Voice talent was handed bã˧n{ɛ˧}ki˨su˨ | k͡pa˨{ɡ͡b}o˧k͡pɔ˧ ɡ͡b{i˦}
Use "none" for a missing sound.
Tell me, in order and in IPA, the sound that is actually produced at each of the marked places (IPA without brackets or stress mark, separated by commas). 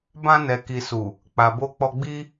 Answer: ɛ˨, b, i˦